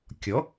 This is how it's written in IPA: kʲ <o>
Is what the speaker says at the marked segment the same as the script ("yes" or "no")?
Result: no